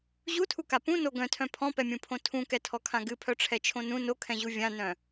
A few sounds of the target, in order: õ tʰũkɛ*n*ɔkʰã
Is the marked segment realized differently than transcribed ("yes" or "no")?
yes